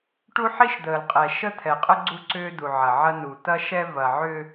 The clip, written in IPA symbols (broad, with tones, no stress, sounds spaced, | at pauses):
ʈ u˦ ħ i˦ ʃ d̪ əː˨ l qʼ ɛ˨ ʃ ə˦ t̪ʰ ɛ˨ qʼ ə˦ ɡ͡ǀ u˦ ǀ ʏː˦ d̪ u˨ ʕ ɐ˨ ʕ ɐ˦ n u˨ t̪ ɐ˦ ʃ ɛ˦ v ɐ˨ ʕ ʏ˦